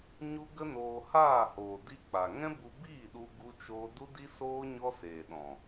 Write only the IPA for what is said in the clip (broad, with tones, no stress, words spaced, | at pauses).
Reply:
ɲu˦ ɡə˦noː˧ haː˦˨hoː˨ di˦k͡pa˨ ŋɛ̃˦bu˧biː˦˨ɗu˧ ɡu˦ t͡ʃoː˦ du˦di˦soː˦ ɲɔ˦seː˨ɗɔ̃˨